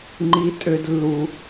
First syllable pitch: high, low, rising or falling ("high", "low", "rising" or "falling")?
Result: high